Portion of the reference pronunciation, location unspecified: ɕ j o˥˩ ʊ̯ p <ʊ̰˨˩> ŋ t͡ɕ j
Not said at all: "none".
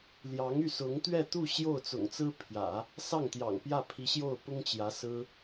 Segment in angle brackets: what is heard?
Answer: ʊ˥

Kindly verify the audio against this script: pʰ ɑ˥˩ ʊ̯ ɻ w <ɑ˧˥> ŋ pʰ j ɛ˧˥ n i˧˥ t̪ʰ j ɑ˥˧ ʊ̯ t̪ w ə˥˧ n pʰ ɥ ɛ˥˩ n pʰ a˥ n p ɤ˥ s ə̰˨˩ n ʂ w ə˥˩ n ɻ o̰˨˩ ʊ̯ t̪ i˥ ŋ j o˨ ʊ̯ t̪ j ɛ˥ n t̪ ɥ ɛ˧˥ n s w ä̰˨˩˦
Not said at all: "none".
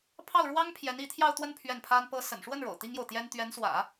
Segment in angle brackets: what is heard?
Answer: ɑ˥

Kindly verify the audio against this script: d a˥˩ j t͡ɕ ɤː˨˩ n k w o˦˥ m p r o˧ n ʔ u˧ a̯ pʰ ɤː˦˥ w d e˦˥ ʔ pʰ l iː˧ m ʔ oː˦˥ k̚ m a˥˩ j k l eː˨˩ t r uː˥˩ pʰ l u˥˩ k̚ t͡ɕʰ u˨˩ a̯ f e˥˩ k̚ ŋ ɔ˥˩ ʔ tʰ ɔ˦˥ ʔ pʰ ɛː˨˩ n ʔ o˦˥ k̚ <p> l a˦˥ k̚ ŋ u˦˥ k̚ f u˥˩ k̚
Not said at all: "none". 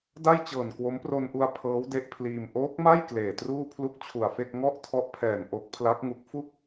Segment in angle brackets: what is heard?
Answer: pʰ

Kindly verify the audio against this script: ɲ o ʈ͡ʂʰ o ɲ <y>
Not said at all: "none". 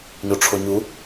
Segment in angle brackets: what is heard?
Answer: u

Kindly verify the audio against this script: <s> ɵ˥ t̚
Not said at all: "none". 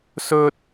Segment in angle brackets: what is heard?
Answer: s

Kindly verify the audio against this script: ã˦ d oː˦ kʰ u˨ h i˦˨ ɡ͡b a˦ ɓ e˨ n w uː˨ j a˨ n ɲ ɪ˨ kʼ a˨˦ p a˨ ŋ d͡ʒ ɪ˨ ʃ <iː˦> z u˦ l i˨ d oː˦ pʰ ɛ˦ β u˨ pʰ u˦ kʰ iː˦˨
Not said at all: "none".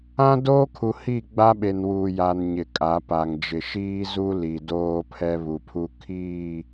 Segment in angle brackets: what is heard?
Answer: iː˦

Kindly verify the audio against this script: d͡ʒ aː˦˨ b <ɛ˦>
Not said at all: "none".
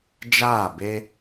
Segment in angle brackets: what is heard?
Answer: e˦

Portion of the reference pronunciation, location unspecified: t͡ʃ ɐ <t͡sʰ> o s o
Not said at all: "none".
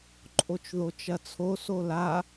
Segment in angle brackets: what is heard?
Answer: t͡sʰ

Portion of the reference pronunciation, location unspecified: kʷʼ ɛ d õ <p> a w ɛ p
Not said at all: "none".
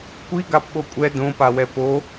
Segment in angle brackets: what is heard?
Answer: p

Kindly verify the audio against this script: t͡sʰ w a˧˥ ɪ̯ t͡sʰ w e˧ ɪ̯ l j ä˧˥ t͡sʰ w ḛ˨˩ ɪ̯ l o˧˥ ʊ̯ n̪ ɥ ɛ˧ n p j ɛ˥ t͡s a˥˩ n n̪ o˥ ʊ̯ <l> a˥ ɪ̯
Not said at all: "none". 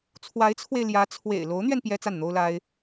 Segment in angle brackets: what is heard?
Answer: l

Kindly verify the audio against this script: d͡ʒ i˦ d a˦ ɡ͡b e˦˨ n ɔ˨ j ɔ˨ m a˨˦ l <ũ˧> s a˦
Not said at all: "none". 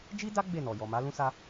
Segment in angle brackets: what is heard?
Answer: ũ˦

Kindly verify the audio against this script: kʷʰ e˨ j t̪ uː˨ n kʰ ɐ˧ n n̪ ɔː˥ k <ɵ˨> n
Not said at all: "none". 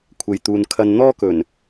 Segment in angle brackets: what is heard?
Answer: ɵ˨˩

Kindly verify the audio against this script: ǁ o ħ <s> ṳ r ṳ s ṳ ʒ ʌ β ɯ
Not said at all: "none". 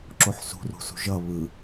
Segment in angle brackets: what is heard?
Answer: s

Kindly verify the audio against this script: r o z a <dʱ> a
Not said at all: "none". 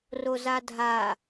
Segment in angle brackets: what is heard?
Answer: dʱ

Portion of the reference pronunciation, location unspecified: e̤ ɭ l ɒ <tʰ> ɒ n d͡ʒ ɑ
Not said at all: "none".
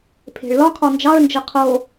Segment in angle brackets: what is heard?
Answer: kʰ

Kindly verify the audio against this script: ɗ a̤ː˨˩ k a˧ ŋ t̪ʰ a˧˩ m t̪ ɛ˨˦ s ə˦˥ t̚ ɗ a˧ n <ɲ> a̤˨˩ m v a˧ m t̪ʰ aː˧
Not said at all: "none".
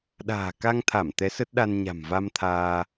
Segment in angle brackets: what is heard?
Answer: ɲ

